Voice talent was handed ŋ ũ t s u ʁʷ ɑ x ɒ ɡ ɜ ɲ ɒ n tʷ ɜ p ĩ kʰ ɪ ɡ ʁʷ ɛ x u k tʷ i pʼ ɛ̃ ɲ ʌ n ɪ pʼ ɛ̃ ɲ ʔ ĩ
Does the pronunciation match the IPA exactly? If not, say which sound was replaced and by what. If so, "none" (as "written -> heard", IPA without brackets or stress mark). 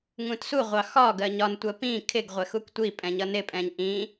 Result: none